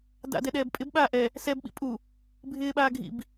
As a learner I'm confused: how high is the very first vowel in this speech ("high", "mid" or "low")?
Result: low